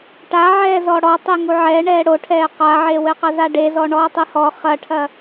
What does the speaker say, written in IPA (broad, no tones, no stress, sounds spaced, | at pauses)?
ʈ a ʕ ɛː z ɔ ɽ ɔ tˤ e ŋ u ʕ ɛ ɳ ɛː ɽ o ʈʰ ɛː q a ʕ e w ɘ q ɐ z a ɖ e z ɔ ɳ ɔː tˤ ɨ h ɔ χ ɐ ʈʰ ɐ